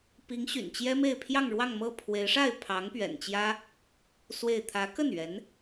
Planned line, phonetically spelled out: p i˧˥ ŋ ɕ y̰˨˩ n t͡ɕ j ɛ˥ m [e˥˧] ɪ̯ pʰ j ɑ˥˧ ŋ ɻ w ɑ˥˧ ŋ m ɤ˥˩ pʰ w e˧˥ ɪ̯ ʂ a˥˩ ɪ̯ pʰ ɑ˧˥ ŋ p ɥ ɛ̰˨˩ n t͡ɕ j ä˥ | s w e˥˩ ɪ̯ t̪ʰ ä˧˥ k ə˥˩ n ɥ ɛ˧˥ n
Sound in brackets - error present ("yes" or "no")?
no